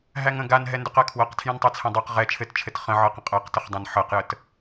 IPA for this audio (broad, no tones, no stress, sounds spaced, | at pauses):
ɦ æ ŋ ə̃ ɡ a n ɦ ɛ n d ɵ q a kʰ w ɤ q tʰ j ɛ̃ n tˤ æ t͡sʰ ɛ̃ dˤ ɤ q ʁ ɛ t͡ʃʰ ɘ t t͡ʃʰ ɘ t χ ə̃ ʕ ɤ q ə̃ qʼ ɤ q t ə χ dˤ ã n ħ ɤ q j ə t